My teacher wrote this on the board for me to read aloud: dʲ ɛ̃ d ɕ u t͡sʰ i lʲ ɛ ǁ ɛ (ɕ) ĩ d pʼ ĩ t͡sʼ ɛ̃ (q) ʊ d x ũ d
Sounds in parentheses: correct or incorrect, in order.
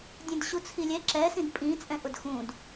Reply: incorrect, incorrect

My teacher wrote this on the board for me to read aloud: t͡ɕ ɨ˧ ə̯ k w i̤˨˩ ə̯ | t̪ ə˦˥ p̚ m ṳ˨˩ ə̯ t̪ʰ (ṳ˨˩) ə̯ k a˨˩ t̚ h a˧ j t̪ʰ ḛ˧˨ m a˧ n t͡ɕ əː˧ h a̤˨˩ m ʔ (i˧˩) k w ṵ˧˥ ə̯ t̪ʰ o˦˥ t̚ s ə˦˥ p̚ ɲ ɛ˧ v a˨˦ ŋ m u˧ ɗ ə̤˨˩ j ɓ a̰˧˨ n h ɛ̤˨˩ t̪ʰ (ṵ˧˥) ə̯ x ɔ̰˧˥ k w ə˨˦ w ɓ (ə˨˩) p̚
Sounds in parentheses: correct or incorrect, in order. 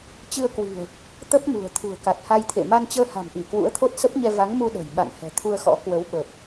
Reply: correct, correct, incorrect, correct

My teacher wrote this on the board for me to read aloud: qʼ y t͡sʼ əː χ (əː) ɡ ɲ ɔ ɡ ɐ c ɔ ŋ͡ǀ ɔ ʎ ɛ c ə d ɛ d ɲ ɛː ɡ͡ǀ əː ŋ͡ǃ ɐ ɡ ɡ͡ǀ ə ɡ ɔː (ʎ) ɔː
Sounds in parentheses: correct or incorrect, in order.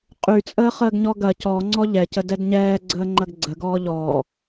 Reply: correct, correct

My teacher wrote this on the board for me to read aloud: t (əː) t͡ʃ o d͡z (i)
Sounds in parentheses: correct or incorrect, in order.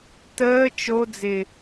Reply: correct, incorrect

